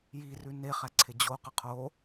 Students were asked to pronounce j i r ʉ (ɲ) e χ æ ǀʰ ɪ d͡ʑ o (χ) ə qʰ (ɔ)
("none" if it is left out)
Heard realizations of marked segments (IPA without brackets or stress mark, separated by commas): n, q, o